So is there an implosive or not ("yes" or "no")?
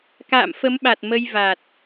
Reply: yes